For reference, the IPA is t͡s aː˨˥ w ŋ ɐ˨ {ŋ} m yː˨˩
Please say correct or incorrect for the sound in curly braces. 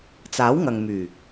correct